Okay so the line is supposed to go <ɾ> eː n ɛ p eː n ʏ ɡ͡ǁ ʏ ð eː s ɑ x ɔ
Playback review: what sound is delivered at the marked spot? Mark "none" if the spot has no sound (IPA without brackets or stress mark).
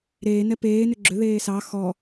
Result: ɾ